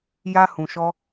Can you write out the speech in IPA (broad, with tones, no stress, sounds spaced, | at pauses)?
j a˦ h ũ˧ ʃ ɔ˦